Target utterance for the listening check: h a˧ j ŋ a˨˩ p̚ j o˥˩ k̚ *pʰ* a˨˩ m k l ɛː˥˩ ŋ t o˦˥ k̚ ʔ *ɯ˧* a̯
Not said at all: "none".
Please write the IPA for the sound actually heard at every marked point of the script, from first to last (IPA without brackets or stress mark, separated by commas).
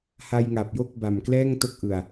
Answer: b, ɯ˨˩